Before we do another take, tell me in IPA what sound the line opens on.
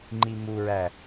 ŋ͡ǃ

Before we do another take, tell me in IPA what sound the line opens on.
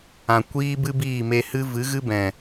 ã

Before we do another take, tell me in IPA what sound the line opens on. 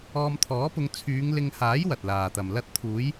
ɔː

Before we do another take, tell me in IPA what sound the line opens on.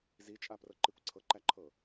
z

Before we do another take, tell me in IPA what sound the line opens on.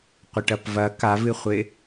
qʷ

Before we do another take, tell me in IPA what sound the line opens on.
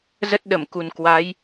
z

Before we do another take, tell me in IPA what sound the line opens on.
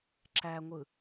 ǁ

